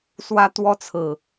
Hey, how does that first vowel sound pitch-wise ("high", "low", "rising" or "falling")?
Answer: high